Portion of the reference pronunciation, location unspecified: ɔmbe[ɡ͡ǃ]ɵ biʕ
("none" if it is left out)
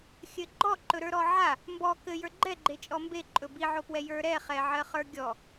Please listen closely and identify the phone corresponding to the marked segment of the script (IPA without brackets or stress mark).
ǃʼ